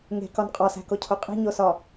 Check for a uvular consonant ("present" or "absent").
present